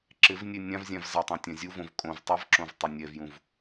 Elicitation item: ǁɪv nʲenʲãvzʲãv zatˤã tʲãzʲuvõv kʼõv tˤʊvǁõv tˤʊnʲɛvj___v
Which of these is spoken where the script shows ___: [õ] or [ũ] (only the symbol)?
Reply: ũ